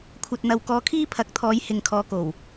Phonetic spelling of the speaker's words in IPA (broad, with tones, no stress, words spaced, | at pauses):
kʷʰɐ˨t̚ n̪ɐ˨wkɔː˨˧ kʰiː˥pʰɐ˨˥k̚t̪ʰɔː˨˧j hɪ˨ŋkʰɔː˨˧ko˨˩w